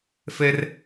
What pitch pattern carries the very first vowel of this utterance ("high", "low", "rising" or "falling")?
high